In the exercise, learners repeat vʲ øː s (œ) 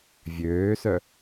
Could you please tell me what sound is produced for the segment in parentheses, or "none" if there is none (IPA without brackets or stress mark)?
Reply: œ